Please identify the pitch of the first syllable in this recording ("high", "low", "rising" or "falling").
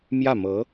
falling